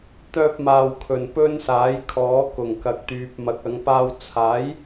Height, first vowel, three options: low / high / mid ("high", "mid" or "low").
mid